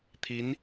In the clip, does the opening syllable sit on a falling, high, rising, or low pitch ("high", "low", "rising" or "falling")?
rising